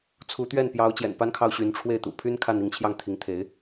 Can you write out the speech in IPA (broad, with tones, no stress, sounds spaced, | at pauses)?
t͡sʰ u˧˥ t̪ ɥ ɛ˥˩ n p j ɑ˧˥ ʊ̯ t͡ɕ j ɛ̰˨˩ n p a˥ n kʰ ɑ˥˩ ʊ̯ ɕ y˧˥ n ʈ͡ʂʰ w e˥˩ ɪ̯ t̪ ṵ˨˩ pʰ y˥ n kʰ a˥˧ n i˥˧ ŋ t͡ɕʰ j ɑ˥˩ ŋ t̪ʰ i˧˥ ŋ t̪ʰ e˧˥ ɪ̯